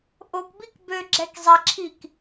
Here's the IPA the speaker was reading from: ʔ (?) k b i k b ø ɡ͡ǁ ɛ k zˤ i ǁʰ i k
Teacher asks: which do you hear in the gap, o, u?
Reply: o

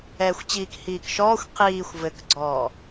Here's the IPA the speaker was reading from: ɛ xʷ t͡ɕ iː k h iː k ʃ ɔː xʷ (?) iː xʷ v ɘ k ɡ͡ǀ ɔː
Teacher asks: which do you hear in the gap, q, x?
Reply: q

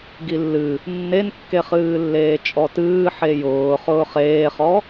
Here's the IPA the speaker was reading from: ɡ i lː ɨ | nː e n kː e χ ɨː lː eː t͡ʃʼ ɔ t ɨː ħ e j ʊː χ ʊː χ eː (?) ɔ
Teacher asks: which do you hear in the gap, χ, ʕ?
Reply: χ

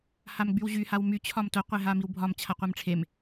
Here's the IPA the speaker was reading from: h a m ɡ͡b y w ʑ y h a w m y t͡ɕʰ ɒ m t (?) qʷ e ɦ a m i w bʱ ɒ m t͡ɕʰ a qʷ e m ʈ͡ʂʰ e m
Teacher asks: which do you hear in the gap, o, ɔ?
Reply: o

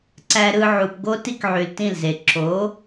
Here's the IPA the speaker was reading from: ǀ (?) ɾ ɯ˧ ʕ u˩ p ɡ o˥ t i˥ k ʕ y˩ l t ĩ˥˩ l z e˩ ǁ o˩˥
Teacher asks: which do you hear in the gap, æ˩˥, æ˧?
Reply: æ˧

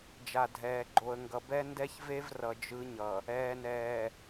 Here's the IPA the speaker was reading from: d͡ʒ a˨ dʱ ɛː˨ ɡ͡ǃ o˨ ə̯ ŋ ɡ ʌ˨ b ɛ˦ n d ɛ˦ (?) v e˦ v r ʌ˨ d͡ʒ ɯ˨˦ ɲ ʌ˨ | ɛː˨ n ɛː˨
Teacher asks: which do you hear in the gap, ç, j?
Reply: ç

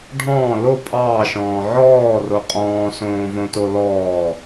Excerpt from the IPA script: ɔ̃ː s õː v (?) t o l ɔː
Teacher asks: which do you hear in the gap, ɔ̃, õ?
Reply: õ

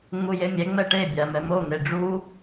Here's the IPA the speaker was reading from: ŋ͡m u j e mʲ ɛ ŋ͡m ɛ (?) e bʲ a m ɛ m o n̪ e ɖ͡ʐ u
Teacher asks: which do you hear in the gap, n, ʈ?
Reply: ʈ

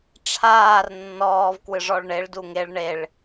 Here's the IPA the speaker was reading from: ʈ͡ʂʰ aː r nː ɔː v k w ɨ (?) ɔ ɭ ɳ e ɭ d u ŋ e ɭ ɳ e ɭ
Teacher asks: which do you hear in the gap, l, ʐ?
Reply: ʐ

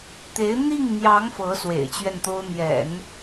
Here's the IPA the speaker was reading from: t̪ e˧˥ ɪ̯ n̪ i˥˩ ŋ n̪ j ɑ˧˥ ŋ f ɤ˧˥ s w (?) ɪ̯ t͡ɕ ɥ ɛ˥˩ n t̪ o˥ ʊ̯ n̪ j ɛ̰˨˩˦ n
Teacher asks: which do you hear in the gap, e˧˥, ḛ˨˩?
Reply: ḛ˨˩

